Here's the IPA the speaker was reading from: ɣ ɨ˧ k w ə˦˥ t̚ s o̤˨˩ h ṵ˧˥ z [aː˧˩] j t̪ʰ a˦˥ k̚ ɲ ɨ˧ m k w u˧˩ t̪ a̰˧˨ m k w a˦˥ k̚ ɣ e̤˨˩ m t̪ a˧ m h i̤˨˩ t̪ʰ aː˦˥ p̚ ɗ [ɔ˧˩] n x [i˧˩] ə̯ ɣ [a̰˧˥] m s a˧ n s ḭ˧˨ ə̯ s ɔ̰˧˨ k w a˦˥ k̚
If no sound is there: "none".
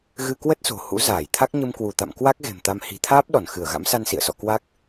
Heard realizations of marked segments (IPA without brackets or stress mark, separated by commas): aː˧˩, ɔ˧˩, ɨ˧˩, a̰˧˥